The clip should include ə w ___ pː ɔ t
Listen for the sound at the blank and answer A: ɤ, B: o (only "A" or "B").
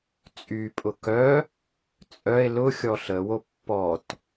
B